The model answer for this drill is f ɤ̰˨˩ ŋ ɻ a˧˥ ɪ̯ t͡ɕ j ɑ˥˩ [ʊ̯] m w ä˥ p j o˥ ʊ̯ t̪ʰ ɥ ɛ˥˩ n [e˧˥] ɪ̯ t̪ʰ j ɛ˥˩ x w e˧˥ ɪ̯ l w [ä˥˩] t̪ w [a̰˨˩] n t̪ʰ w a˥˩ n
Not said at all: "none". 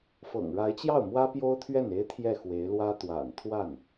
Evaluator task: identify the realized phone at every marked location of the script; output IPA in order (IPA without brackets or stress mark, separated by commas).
ʊ̯, e˥, ä˥, a̰˨˩